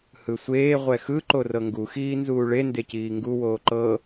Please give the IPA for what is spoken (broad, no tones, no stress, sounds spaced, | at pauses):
h ɯ sʷ eː ʁʷ ɛ x ɯ ǃ o r ɤ ŋ ɡ u x iː n z uː ɭ e n d e c iː ŋ ɡ u w oː ǃ ɤ